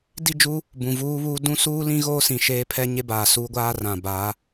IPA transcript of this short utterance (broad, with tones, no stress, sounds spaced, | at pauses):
d i˦˨ d͡ʒ uː˦ | b ũ˨ v uː˦ β uː˦ d ũ˦ s uː˦ l ĩ˦ ɣ oː˦ s ĩ˨ ʃ eː˦ pʰ ɛ˦ ɲ e˦ b aː˨ s uː˦ ɡʷ aː˦ r ã˨ b aː˨˦